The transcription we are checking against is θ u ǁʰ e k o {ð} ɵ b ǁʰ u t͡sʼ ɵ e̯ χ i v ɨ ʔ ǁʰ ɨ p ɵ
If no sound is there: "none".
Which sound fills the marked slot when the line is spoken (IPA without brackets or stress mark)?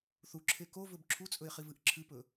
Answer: v